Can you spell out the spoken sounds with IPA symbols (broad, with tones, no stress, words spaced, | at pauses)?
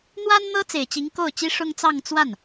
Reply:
n̪wa˥nn̪ɤ˥ t͡se˨˩ɪ̯t͡ɕi˧˥ŋko˥˩ʊ̯t͡ɕi˥ ʂʊ˥ŋt͡sɑ˥˧ŋ t͡swa˥˩n